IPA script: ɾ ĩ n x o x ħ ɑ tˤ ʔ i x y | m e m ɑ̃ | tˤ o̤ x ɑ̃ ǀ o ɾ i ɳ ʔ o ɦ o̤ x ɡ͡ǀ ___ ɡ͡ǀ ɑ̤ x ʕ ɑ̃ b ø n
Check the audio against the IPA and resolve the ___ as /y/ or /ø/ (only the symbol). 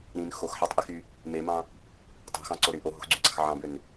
y